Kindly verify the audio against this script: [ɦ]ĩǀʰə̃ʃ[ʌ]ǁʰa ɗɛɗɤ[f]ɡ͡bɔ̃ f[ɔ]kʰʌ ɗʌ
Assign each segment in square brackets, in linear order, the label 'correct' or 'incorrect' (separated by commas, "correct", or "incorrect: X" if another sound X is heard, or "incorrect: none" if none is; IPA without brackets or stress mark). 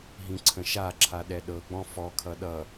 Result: correct, incorrect: a, incorrect: none, correct